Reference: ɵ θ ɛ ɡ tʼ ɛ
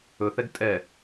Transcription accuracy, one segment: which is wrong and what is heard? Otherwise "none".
none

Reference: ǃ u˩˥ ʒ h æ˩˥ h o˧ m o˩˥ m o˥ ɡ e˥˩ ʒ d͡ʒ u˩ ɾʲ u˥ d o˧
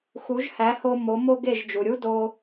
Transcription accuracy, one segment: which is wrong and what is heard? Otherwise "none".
ǃ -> x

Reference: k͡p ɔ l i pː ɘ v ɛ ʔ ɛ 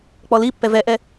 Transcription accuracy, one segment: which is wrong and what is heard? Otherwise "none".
ɘ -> ɛ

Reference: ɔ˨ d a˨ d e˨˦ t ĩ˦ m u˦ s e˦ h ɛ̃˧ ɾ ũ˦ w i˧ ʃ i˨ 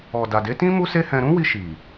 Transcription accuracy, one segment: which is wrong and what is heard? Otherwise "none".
none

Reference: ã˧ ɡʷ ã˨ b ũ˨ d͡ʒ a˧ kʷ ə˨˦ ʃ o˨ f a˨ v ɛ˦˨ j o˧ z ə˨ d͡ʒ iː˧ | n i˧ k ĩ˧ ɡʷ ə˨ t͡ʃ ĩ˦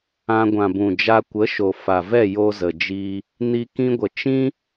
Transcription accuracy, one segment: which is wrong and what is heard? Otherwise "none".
none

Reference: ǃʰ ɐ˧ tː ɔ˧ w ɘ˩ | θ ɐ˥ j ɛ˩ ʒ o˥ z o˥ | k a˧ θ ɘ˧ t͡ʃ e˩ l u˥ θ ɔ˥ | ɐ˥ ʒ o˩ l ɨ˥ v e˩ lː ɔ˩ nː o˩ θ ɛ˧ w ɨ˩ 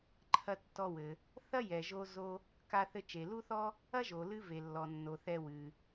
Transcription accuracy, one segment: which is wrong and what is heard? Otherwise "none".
none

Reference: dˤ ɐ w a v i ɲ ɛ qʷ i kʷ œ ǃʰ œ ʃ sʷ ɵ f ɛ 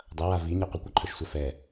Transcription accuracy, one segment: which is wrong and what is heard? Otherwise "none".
ɵ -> œ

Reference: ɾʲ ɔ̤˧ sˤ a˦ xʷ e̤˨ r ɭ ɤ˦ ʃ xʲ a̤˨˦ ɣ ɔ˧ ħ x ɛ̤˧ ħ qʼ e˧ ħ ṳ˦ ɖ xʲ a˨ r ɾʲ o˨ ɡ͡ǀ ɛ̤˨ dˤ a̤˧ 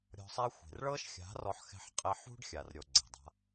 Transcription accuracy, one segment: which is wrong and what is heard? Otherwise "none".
ɣ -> r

